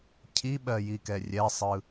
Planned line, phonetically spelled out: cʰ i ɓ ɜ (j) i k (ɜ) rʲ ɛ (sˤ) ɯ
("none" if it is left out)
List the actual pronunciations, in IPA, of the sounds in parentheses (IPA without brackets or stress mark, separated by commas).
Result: j, ɛ, sˤ